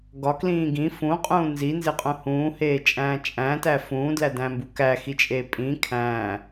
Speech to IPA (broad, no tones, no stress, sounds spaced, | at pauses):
ɡ ɒ k l ĩː ɡ ĩ f ũ qʼ ũː n z i n z e qʼ ũ h ũː h eː t͡ʃʼ æ̃ː t͡ʃʼ æ̃ t æ f ũː d l æ d æ̃ m b u k æ x i t͡ʃʼ eː pʼ ĩ kʰ æ̃ː